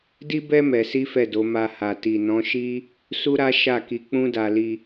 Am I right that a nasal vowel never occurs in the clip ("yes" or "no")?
no